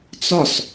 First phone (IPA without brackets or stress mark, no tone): t͡s